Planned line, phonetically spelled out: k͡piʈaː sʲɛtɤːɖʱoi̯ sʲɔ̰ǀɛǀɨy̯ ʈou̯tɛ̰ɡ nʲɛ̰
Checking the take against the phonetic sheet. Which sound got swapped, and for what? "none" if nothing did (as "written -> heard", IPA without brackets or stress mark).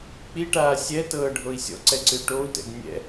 none